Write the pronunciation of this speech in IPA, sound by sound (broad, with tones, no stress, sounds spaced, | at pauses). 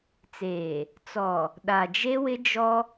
t͡s eː˨ | t͡s ɔ˨ | ɗ a˨ d͡ʒ e˦ w ɪ˦ d͡ʒ ɔ˦